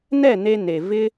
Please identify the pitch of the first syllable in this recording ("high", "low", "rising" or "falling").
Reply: falling